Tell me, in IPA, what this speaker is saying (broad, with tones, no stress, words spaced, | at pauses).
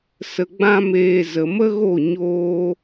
sə˧ɡ͡bã˦meː˧ zə˨mə˦ɣo˦˨ ɲoː˦